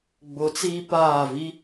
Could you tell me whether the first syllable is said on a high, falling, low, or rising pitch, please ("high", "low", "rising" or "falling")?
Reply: rising